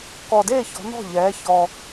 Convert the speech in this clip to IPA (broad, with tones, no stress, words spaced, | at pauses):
kɔ˨˩deː˥˩çɔ̤˩˧ nɔ̤˥˩ʎɛː˩˧ çɔ˨˩